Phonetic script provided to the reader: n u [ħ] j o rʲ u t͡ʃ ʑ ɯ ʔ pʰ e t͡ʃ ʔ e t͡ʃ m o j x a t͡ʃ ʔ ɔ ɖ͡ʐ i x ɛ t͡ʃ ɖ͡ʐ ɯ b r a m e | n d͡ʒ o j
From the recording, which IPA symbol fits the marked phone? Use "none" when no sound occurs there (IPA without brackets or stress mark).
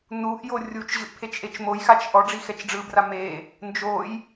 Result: ʔ